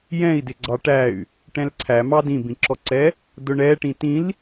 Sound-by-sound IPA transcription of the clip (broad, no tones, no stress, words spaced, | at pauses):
jɛ̃i̯ dɪɡ͡ǀɑʈæy̯ | ʈɛ̃lǀʰæmɑ dĩbĩǁɔǀɛ | dʊɳɛʈĩ tĩl